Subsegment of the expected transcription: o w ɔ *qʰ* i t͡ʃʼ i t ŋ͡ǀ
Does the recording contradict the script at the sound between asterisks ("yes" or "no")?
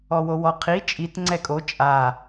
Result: no